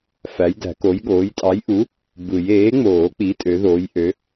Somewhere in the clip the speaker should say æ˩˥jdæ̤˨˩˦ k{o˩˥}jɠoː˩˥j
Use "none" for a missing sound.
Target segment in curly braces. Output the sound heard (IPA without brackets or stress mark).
o˩˥